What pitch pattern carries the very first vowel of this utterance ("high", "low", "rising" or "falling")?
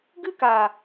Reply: high